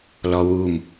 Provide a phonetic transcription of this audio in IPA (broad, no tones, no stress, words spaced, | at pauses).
lɔwum